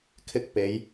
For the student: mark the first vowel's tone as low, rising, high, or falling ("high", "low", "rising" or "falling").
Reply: high